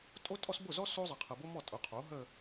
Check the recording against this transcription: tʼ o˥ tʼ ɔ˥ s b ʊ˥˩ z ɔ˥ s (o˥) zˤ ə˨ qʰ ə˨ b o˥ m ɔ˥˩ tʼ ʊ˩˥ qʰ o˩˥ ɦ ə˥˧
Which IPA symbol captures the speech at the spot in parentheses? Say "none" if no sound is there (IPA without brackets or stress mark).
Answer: o˥